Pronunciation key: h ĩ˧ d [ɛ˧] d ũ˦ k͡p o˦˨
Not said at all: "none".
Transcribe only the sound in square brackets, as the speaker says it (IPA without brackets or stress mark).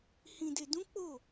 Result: e˧